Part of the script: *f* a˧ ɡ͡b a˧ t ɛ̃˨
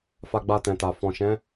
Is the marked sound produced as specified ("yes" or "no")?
yes